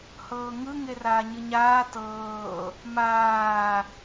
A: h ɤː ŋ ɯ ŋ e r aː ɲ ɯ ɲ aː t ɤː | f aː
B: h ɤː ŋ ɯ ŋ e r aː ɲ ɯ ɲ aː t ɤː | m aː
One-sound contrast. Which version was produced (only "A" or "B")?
B